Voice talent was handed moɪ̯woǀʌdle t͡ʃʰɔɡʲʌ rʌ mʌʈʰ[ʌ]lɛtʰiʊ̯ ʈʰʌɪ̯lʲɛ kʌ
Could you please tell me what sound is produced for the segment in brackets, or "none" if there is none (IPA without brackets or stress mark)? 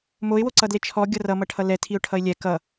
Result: ʌ